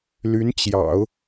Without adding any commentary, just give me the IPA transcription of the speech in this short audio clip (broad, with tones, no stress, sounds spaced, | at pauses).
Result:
l y˧˥ n t͡ɕ j ɑ̰˨˩˦ ʊ̯